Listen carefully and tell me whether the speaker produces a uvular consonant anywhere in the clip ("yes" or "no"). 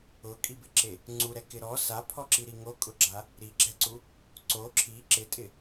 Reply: no